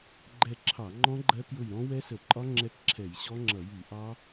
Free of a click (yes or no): no